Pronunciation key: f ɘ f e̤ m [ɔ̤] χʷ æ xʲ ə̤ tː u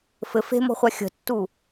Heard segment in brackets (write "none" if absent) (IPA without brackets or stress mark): ɔ̤